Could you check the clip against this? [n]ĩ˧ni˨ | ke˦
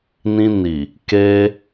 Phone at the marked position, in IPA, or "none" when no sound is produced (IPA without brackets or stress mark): n